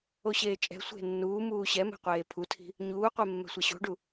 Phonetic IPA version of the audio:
oɕeːt͡ʃʼɛ̤sʷe̤ nːuːmuː ɕɛmɛ̤ qʷeːpʰutʰi̤ | ɲuːqʷe mːɛ̤sʷɛɕo̤ɖu

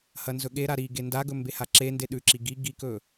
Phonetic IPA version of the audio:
hɐnzɵɠeɾa ɾi ɡendaɡɵ mbehaǁende ɗʉǁi ɡi ɡikɵ

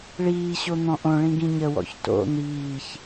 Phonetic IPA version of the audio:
ɭiːɕo n̪ɔ̃ʔõɭĩ ɡĩɲəwɔ̰ç to̰ n̪iːç

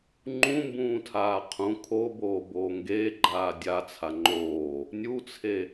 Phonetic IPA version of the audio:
ŋ͡ǃũmbũːtʰaː qʰũ kʰoboːboː ŋɡeːɡ͡ǃaː dʲat͡sʰa ŋ͡ǃoː | nʲut͡sʰe

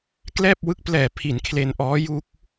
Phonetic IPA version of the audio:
klɛː˥˩p̚wɯ˦˥k̚plɛː˨˩pʰi˩˦n kʰle˧nʔɔː˦˥ ju˦˥k̚

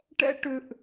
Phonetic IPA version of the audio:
ʈɛ̰˥ ʈʏ˥ʔ

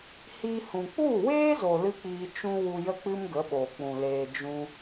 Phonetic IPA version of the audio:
hiː˧hũ˨ k͡pu˦˨weː˦zo˨ lɨ˦k͡piː˧t͡ʃũ˦ wu˧jə˦k͡pɨ˦m ɡə˨˦ɓoː˨k͡pũ˨leː˧ d͡ʒũ˧

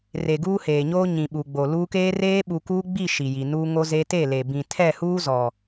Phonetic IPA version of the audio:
re˨ɡuː˦heː˨ɲoː˦ ɲĩ˨ ɓu˨ɡ͡bo˨luː˦ keː˦reː˦ ɓu˨kuː˦ɡ͡bi˦˨ ʃi˨ji˨nuː˦ ŋo˦ze˦ te˦˨le˨ bĩ˨ tʰɛ˦˨huː˦zɔ˨

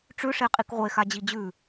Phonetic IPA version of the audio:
ʈ͡ʂʉʂeqʼik ʁʷexad͡ʑi d͡ʑʉ

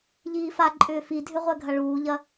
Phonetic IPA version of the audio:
ʎiːfa ǃʼʏːfidʱʏ ʁʷɛɡʱɐɭuːʎɐ

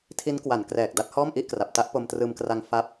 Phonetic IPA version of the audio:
tʰi˦˥nkwa˨˩nkrɛː˨˩k̚ da˥˩t̚hɔː˥˩mʔi˥˩ʔkra˨˩p̚ ta˦˥ʔpo˧mtrɯː˧mkra˧ŋ fa˦˥p̚

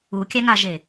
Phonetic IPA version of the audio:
ukʲæŋaʒe

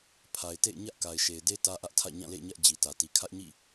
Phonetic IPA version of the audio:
pʰa˨ɪ̯tḛ˦˨ɪ̯ɲä˦ʔ ka˨ɪ̯ʃe˨ɪ̯de˦ tä˦ʔä˦ʔtʰä̰˦˨ ɲã˦˨lḛ˦˨ɪ̯ɲä˦ʔ d͡ʑi˨tä˨ti˨ kʰä˦ʔɲḭ˦˨

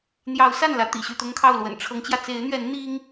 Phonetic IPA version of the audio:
n̪jɑ˨˦ʊ̯sa˥˨nlä˨˦ t̪ḭ˨˩ɕy˥˨t̪ʊ˦ŋkʰɑ˥˨ʊ̯ lwə̰˨˩nʈ͡ʂʰɤ˨˦ŋt͡ɕjä˧ t͡se˨˦ɪ̯n̪ɥɛ˨˦n n̪i˦ŋ

